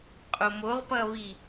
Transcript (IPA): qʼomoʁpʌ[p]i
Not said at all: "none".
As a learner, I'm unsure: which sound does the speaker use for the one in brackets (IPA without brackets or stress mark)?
β